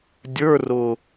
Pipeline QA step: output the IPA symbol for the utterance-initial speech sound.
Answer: dʲ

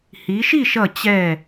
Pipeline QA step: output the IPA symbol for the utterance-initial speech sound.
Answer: h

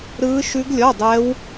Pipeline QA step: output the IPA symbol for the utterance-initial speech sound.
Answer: ɾ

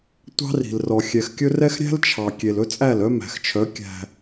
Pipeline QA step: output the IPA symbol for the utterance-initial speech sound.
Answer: tʷ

